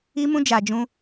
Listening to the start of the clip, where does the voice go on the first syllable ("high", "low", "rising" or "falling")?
high